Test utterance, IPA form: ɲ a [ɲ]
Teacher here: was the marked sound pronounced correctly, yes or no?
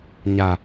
no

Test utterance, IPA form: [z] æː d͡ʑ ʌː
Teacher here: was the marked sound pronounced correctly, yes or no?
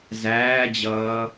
yes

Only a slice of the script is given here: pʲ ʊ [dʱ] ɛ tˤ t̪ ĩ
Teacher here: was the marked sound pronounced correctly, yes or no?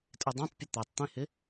no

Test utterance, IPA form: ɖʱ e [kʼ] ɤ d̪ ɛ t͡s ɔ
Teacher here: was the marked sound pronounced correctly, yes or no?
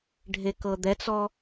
no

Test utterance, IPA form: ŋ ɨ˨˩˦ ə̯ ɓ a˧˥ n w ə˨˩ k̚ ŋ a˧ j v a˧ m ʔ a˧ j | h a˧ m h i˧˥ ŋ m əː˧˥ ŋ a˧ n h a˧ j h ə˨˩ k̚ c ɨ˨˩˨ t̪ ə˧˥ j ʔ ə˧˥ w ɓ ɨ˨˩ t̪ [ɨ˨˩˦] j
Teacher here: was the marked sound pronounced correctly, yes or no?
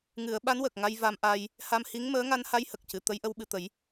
no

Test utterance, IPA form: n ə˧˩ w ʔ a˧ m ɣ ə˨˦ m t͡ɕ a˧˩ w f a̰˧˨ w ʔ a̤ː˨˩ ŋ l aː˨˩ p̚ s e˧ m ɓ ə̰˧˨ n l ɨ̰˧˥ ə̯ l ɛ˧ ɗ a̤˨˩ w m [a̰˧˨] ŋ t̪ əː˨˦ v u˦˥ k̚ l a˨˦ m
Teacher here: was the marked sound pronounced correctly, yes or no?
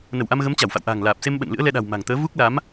no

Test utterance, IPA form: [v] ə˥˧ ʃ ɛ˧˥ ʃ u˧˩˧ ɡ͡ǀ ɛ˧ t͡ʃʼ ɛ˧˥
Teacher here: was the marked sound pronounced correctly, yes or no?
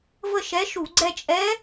yes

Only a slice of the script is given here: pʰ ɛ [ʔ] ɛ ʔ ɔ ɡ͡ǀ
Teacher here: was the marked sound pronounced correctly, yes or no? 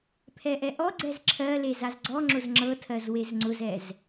yes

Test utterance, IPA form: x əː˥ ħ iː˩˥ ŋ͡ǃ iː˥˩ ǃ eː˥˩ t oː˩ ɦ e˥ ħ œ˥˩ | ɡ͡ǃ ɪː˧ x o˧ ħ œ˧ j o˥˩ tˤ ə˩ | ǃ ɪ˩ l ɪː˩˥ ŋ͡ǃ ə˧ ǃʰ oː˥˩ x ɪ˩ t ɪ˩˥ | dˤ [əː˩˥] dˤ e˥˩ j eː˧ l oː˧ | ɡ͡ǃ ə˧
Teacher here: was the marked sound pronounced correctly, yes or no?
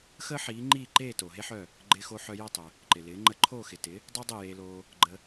no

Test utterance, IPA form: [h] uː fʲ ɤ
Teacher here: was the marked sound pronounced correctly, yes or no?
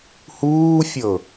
yes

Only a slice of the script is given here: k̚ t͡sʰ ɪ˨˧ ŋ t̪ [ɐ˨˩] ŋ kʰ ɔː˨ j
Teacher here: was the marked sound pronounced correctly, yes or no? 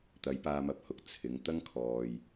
no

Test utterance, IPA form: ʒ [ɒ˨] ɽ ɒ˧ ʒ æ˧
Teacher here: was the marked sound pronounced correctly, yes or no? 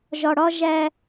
yes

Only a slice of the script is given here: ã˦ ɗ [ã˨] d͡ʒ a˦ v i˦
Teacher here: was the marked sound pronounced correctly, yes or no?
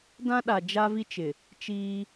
no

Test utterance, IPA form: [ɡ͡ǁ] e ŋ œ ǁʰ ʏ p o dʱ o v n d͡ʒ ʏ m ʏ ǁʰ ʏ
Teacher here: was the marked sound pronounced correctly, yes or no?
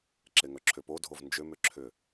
no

